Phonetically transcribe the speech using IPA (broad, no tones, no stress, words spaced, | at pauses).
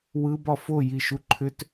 wɯbɒ fojiʃu ǃʰʏt